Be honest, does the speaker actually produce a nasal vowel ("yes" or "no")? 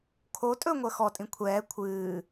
yes